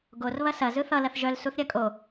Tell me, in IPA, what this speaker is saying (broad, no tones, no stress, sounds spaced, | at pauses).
ɡ o r β ɐ s ɐ z ɯ θ ʌ l ɐ θ ʒ œ l s u θ ɾʲ ɐ kʼ o